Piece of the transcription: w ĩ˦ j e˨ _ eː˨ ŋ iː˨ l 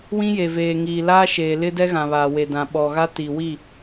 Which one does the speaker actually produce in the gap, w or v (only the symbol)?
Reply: v